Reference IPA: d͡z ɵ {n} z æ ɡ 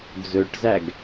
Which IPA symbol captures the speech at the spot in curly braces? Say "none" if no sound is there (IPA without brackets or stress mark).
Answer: ʈ